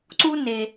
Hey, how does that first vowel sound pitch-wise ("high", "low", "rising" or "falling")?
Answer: high